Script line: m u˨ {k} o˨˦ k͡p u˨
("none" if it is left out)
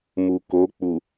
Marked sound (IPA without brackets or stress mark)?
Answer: k